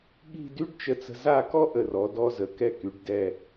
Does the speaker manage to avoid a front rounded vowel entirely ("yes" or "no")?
no